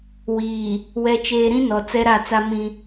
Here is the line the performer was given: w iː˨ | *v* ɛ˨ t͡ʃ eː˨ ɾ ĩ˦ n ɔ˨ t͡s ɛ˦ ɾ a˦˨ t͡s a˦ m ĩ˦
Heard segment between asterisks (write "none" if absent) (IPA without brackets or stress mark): w